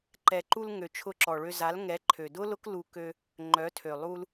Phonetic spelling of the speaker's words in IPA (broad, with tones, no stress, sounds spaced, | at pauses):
ǃ ɛ˨ ǃ u˧ l ŋ ø˨ t͡ʃʰ ʊ˧ ǁ ɔ˨ ɭ ø˧ z a˨˦ l ŋ ɛ˨˦ ǃʰ ø˨ d ʊ˦ l ʊ˦ k l u˧ k ø˧ | ŋ͡ǃ œ˨˦ tʰ ø˨ lˠ u˧ l